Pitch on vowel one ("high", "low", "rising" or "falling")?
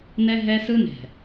high